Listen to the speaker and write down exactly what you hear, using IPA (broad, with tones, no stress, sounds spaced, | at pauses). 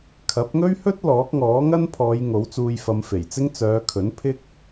kʰ ɐ˨˥ p̚ ŋ ɵ˥ ɥ h ɵ˥ t̚ l ɔː˨˥ k̚ ŋ ɔː˨˥ ŋ ɐ˥ n pʰ ɔː˨˧ j ŋ o˨˥ w t͡s uː˧ j f ɐ˨˧ m f e˨˩ j t͡s ɪ˥ ŋ t͡s œː˨˧ kʰ ɵ˨˥ n pʰ ɪ˥ k̚